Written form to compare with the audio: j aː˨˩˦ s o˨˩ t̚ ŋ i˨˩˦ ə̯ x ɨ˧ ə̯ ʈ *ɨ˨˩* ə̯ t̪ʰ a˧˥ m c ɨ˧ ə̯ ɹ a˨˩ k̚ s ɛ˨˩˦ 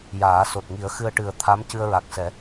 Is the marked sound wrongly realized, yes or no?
no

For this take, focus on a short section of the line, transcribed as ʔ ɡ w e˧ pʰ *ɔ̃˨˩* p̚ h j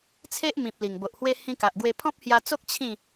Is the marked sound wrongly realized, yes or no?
yes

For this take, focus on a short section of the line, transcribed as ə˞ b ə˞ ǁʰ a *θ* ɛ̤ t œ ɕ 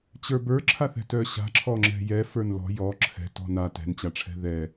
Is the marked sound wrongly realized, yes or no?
no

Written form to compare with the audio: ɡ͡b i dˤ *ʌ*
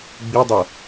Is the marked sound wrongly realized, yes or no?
no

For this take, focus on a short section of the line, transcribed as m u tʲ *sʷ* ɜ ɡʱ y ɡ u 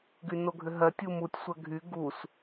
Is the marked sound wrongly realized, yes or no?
no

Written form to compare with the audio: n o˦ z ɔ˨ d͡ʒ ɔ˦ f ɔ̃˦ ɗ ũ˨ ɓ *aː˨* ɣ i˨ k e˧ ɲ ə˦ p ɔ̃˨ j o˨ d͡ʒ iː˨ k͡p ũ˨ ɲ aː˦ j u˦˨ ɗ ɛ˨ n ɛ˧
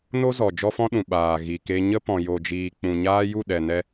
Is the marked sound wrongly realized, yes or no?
no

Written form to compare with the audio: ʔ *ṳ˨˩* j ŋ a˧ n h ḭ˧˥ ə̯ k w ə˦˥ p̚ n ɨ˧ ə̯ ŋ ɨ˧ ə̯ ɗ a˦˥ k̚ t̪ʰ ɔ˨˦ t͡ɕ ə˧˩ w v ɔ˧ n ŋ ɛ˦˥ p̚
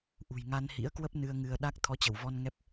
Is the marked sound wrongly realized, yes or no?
no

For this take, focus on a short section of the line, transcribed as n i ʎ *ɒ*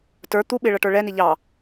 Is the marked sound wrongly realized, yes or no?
yes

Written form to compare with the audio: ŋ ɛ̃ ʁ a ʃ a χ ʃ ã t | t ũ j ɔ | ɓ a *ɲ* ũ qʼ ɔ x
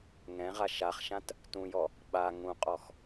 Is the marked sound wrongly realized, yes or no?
yes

